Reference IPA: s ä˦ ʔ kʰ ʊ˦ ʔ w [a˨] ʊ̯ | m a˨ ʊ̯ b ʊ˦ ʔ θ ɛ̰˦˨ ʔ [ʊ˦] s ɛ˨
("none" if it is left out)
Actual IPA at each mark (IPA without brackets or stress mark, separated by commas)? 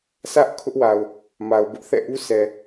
a˨, u˦